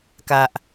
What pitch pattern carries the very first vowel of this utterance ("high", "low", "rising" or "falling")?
low